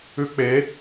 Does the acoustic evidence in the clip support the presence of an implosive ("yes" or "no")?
no